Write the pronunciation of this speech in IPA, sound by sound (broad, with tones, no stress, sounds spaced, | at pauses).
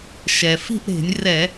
ʃ ɛ˩ f i̤˥˧ ʔ ɾ e̤˧˩˧ nʲ r ɛ˧˩˧